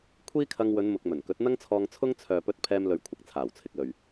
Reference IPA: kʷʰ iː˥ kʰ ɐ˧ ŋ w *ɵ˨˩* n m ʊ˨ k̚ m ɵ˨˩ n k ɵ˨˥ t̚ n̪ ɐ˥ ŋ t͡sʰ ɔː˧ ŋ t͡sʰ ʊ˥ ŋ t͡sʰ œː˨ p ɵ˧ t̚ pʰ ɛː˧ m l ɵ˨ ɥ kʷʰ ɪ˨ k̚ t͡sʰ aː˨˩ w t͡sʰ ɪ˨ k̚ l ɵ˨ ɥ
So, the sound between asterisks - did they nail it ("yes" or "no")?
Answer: no